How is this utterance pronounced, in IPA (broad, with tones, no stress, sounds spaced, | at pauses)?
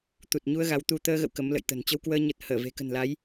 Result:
t̪ u˨˩ t̚ ɲ u˧ ə̯ ɣ a˨˦ w t̪ u˧ t̪ əː˧ ɣ ə̰˧˨ w k ə˨˦ m l ə̰˧˨ j t̪ ə̤˨˩ n t͡ɕ ə˧ w k w əː˧ ɲ ə˨˩ t̚ h əː˧˩ v e̤˨˩ k ə̤˨˩ n l a˨˦ j